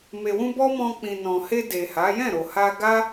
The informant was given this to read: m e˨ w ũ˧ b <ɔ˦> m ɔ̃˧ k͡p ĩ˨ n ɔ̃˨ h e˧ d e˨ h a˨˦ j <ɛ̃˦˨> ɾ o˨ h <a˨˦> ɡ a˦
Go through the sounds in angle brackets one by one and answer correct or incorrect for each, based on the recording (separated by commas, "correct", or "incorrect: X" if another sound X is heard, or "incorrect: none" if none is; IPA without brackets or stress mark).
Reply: correct, correct, incorrect: a˧